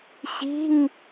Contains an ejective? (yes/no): no